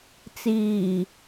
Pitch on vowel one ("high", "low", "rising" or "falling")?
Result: low